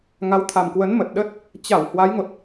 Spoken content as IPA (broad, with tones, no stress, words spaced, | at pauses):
ŋa˨˦wt̪ʰa˨˩mkwə˨˦n mə˨˩t̚ ɗə˦˥t̚ | t͡ɕa˧˩w hwa˨˦jŋo˨˩t̚